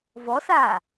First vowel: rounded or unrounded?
rounded